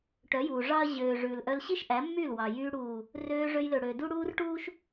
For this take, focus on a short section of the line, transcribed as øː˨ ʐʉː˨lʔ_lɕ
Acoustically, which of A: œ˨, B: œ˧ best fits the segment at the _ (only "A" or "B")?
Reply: B